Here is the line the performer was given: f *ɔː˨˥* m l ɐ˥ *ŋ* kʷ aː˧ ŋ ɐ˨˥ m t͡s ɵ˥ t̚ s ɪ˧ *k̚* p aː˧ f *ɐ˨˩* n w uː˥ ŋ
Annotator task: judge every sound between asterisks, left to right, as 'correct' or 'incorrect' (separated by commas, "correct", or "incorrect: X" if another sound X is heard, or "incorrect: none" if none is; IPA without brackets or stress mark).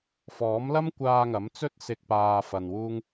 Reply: correct, incorrect: m, correct, incorrect: ɐ˧